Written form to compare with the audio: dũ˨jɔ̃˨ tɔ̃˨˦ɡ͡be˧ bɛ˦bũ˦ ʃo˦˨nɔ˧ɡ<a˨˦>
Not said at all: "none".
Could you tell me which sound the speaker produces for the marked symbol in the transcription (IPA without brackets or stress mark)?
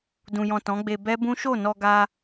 a˧